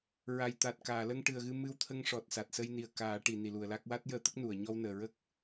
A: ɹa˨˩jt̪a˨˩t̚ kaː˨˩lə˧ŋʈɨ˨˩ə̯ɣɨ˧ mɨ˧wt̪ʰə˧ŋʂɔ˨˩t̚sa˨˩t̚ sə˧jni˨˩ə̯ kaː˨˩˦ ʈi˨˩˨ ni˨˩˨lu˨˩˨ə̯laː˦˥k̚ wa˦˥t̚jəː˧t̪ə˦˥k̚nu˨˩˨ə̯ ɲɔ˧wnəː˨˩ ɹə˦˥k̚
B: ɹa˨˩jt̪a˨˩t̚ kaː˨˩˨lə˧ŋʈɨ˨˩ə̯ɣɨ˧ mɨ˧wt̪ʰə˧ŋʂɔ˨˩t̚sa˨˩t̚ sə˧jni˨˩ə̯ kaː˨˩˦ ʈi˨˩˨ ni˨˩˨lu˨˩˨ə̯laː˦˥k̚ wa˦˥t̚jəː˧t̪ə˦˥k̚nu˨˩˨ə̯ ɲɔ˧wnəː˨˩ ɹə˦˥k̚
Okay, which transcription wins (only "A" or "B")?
B